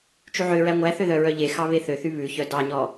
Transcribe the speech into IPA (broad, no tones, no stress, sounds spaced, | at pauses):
t͡ʃ y ʕ ø ɹ æ ŋʷ æ θ ø ð œ ɹ œ ʎ e x ɑ β e θ ø θ y β ʉ ç œ d ɑ ɲ ɔ